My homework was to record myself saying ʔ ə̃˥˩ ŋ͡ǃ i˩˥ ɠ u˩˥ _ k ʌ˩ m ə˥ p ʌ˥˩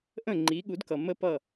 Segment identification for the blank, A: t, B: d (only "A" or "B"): B